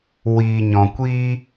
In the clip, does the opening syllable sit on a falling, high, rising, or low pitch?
low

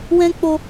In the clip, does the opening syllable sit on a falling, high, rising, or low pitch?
high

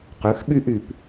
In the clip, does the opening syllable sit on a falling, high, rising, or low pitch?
rising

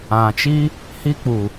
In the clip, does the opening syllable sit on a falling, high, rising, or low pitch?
low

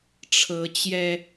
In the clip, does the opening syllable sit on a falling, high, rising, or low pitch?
rising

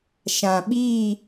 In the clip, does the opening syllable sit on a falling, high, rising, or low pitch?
low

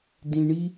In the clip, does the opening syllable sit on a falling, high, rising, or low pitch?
low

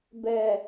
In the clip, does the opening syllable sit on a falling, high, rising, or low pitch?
low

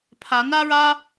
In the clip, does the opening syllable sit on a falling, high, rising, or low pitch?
rising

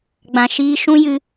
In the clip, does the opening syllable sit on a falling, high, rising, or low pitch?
low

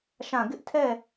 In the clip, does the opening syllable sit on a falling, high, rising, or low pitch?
falling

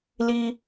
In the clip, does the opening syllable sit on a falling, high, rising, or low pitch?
high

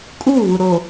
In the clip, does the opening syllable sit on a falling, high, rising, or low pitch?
falling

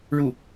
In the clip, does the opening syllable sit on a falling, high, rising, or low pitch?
falling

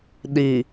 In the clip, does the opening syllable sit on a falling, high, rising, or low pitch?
low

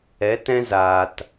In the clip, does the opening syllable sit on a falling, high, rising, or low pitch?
rising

